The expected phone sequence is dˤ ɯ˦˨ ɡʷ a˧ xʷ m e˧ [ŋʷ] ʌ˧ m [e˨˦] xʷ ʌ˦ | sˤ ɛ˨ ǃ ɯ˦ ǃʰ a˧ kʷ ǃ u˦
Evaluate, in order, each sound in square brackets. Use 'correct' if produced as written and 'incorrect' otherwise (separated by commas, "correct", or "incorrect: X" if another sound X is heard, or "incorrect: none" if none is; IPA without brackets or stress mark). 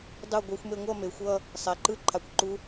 correct, correct